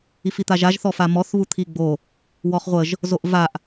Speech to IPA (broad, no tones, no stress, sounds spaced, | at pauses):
i f i t̪ a ʒ a ʒ θ ɔ f a m ɔ θ β u t̪ʰ i ɡ͡b o | w ɔ χ ʁʷ ə ʒ | z o ʔ v a ʔ